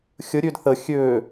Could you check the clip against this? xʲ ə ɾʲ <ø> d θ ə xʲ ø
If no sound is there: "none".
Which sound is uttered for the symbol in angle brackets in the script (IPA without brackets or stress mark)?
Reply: ø